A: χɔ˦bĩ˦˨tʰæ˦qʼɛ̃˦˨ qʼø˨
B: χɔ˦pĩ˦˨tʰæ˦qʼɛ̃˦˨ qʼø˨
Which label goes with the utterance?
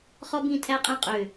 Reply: A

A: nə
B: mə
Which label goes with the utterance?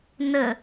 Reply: A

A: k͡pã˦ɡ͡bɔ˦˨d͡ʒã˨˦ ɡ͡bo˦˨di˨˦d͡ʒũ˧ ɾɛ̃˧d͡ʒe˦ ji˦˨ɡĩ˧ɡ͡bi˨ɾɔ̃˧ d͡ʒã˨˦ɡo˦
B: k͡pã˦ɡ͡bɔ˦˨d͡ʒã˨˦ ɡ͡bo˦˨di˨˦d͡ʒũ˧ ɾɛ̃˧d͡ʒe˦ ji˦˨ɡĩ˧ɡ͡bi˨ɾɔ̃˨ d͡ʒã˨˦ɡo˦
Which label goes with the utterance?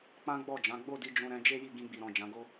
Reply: B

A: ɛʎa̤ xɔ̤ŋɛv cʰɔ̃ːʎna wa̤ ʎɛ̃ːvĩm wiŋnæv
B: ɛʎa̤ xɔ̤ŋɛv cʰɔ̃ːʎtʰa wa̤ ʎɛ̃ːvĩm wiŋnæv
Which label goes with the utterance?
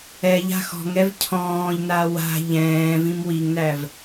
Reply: A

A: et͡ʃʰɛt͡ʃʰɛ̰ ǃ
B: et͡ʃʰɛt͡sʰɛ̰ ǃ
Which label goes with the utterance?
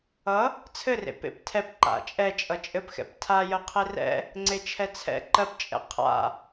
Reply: B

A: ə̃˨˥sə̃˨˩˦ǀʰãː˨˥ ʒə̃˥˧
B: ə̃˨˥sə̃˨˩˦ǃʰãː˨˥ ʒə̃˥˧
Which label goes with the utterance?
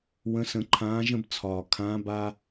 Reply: B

